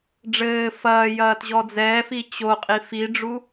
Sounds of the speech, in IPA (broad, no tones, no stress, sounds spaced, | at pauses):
ɖ͡ʐ ɘː f ɐː j ɐː t ʑ ɔ d͡z ɛː f i t͡ɕ o qʼ i f i ɖ͡ʐ u